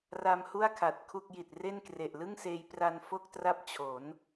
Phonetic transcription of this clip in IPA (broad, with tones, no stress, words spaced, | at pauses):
ra˧mhu˥˩a̯kʰa˨˩t̚ kʰu˥˩k̚ji˨˩t̚ re˥˩nkre˨˩ʔlɯ˥˩ŋseː˧j pra˧n fo˥˩k̚tra˥˩p̚ t͡ɕʰo˩˦n